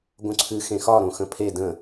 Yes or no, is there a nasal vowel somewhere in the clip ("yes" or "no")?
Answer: yes